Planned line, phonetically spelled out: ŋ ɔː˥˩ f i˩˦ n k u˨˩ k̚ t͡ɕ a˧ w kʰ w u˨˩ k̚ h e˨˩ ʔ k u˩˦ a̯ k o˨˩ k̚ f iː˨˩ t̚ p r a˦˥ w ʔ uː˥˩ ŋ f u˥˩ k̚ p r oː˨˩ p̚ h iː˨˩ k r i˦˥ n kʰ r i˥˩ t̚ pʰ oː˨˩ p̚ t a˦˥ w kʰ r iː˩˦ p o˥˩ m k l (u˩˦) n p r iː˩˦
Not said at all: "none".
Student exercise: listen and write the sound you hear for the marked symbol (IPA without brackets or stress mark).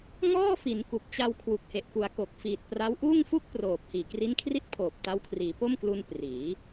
u˧